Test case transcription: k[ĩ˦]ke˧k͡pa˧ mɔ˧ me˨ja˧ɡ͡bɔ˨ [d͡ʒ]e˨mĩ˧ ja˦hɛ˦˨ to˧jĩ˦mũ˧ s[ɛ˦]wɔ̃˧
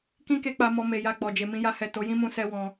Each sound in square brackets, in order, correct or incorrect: correct, correct, correct

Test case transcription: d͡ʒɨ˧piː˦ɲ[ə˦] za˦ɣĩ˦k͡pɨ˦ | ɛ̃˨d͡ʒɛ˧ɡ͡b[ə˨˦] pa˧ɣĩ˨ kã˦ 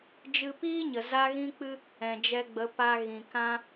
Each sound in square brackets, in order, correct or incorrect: incorrect, correct

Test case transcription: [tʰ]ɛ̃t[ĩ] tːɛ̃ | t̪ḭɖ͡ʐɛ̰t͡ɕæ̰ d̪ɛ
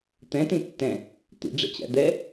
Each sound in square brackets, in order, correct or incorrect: incorrect, correct

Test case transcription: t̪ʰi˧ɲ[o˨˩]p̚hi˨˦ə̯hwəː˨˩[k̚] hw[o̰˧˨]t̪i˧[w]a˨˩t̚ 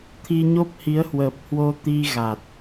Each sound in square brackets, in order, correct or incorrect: incorrect, incorrect, incorrect, incorrect

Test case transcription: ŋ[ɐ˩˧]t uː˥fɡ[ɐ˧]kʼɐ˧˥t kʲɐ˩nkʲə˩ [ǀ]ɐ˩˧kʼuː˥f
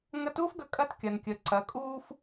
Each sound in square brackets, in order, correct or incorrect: incorrect, correct, correct

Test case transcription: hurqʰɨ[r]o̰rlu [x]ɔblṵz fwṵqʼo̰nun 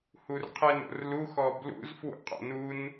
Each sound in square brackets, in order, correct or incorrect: incorrect, correct

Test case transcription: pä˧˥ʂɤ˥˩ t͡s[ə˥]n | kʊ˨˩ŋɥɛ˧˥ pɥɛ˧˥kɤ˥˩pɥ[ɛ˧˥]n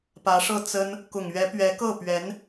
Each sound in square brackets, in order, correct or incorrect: correct, correct

